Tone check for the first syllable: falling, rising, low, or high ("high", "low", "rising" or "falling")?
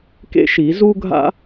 high